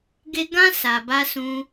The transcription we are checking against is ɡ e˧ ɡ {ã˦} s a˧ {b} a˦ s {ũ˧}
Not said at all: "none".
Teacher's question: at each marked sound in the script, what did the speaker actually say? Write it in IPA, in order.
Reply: ã˦, b, ũ˧

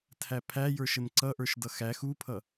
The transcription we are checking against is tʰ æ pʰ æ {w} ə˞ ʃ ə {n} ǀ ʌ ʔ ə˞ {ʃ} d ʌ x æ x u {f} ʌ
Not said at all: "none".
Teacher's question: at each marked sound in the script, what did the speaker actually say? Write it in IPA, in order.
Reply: j, n, ʃ, pʰ

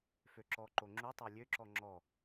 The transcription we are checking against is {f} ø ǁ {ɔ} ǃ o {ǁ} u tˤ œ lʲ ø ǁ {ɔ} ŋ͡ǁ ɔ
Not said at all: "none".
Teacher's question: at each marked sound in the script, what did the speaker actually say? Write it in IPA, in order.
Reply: f, ɔ, ŋ͡ǁ, ɔ

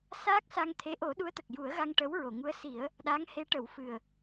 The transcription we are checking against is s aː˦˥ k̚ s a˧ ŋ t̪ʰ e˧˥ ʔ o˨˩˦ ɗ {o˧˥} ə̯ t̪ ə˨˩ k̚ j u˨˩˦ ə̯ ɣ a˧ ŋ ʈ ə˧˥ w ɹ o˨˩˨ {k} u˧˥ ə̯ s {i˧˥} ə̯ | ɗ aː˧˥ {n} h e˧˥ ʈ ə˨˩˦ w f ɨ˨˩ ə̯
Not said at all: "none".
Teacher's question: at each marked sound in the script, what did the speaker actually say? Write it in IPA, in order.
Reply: u˧˥, ŋ, i˨˩˦, ŋ

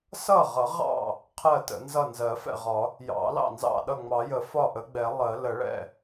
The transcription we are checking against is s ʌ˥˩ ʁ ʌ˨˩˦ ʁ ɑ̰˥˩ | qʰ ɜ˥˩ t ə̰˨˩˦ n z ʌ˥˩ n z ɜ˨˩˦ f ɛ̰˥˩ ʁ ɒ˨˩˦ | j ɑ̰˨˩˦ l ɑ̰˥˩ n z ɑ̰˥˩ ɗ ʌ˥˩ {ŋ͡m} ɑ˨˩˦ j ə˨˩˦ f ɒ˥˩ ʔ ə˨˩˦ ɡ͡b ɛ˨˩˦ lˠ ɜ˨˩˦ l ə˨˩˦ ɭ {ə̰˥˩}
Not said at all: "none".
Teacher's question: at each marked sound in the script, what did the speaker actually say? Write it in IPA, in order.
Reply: ŋ͡m, ɛ̰˥˩

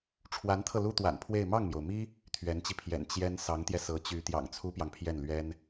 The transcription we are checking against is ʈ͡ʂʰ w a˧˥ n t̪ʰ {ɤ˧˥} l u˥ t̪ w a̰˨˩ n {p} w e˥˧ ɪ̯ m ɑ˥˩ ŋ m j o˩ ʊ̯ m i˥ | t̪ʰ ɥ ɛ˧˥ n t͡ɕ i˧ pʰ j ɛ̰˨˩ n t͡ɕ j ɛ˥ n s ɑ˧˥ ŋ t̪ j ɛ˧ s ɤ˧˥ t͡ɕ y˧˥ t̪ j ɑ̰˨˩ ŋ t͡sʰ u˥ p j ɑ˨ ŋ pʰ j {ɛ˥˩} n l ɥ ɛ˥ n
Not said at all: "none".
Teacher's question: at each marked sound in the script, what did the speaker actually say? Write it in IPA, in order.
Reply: ɤ˧, pʰ, ɛ˥˩

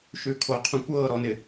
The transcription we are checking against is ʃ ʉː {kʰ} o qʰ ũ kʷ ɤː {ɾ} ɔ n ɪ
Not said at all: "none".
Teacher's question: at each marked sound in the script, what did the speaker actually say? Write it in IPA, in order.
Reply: kʰ, ɾ

